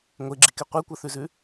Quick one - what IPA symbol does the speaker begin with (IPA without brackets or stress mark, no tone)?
ŋʷ